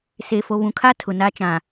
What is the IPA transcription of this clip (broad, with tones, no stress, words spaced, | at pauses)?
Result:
seː˨fo˨βũ˨kʰa˦ tʰʊ˨na˦ t͡ʃã˨